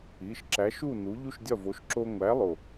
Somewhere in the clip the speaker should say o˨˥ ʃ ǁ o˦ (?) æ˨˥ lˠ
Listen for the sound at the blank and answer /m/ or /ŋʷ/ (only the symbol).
ŋʷ